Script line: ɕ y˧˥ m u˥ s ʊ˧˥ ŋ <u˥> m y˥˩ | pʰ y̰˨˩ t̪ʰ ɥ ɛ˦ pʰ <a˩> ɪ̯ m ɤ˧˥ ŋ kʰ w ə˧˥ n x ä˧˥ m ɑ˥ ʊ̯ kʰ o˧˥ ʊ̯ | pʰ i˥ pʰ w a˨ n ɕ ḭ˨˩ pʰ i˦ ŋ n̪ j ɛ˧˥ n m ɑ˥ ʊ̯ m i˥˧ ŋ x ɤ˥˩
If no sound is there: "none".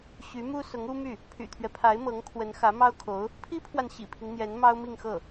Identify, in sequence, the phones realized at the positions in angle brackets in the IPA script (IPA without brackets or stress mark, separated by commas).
u˥, a˧˥